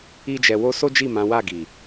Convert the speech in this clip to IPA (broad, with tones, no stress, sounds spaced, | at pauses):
i˦ d͡ʒ ɛ˧ w o˦ s o˦ d͡ʒ i˦˨ m ã˨˦ w a˦˨ ɡ i˨